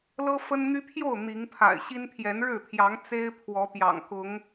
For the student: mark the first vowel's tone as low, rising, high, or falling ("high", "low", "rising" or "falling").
high